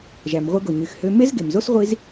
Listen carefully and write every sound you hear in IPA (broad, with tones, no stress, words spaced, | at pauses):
ʒæ˩mʁʷɯ˧ɡo˩ ɲy˩xhø˧ me˥zɡe˩mzo˥s ʁʷi˧z